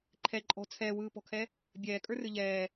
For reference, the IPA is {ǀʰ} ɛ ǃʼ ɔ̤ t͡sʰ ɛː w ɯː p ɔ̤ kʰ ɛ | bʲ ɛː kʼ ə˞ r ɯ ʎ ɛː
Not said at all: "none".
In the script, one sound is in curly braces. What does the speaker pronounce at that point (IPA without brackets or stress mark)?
ǃʰ